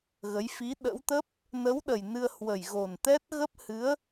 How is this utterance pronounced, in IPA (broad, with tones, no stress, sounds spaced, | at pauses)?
ɣ ə˨˦ j f i˨˦ ɗ ə̰˧˥ w t̪ ə˦˥ p̚ | n ə˨˦ w ɗ ə˨˩ j n ɨ˧ ə̯ h w ə˨˩ j ɣ o˨˩ n t̪ ɛ˦˥ t̚ ɣ ə˦˥ p̚ h ɨ˨˦ ə̯